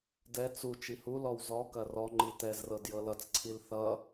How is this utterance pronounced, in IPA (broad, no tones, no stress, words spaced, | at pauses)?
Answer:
dɛ t͡su t͡ʃihulɔw zɔkɐ rɔŋ͡ǃi tɛzrɤd jɤlʌt͡sǀʰil θʌ